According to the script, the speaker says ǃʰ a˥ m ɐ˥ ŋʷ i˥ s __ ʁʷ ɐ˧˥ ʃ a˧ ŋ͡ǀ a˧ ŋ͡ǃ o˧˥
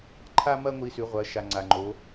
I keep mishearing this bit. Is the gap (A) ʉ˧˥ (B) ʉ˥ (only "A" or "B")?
A